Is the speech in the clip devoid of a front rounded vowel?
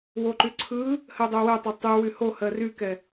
no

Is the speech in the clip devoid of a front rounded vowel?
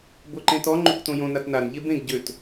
no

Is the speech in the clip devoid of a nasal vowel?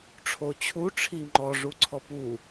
yes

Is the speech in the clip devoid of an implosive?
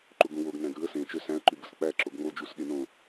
no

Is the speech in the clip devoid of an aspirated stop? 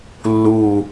yes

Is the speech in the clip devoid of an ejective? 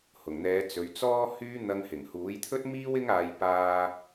yes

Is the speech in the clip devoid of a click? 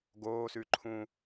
no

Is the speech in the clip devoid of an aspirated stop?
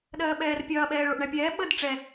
yes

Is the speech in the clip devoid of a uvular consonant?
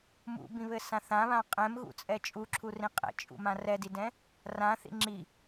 no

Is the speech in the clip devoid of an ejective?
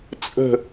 no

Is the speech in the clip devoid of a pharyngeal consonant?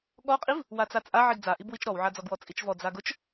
no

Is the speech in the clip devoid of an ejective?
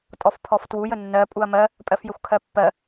no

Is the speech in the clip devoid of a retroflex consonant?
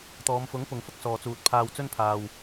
yes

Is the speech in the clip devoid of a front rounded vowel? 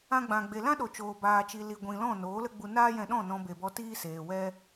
yes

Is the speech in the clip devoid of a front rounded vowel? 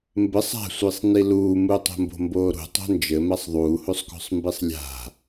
yes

